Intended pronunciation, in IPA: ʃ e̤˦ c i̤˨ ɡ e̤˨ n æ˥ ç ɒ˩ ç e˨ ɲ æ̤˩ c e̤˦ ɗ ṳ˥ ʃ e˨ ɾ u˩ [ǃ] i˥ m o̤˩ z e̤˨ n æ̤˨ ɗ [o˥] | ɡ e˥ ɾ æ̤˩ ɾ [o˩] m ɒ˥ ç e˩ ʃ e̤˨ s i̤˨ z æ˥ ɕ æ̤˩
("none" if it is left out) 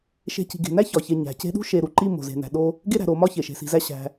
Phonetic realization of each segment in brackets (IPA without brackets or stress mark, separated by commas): ǃ, o˥, o˩